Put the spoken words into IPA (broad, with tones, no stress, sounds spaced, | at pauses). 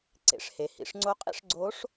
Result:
ǀ ḛ˩˧ ʂ h e˩ h ḭ˩˧ ʂ ŋ͡ǀ o˧ qʼ ḭ˥ ʂ ɡ͡ǀ o˧˥ ʂ